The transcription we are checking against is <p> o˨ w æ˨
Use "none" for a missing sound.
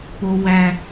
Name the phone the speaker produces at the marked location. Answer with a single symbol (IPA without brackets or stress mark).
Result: p